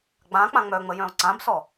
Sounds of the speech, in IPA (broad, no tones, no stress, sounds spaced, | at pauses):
ɡ͡b ã k͡p ã ŋ͡m œ ŋ͡m ə j œ̃ o̯ ǀ ã b s ɔ